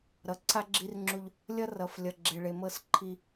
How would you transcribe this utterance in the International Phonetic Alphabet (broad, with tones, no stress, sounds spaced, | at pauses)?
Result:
ɾ ʌ˨ ǀʰ a˦ ɡ͡ǁ i˦ r ŋ͡ǁ u˦ ʎ | lʲ ʌ˦ r ʌ˨ f lʲ ʌ˨ ɡ͡ǁ e˨ ɭ e˨ m ɤ˦˨ s ǃʰ i˦